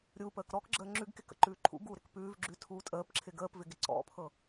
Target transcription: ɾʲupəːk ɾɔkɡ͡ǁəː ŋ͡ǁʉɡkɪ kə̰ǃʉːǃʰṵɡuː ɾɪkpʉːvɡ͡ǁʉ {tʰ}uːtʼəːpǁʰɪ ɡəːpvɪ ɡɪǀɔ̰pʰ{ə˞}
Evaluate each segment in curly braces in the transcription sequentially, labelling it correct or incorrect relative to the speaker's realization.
correct, incorrect: ɤ

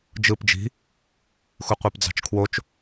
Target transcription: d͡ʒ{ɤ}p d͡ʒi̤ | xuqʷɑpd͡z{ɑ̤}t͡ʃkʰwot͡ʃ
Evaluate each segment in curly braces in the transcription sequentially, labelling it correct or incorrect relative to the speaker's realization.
incorrect: ɯ, correct

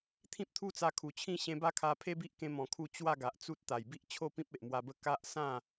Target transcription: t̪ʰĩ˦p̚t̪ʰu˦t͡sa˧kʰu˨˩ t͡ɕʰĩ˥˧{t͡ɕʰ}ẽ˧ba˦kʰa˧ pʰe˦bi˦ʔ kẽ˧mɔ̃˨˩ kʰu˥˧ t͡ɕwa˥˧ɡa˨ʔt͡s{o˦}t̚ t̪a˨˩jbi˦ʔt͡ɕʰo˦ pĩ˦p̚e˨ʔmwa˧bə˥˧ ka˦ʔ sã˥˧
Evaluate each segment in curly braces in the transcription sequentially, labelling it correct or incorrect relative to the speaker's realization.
incorrect: ɕ, incorrect: u˦

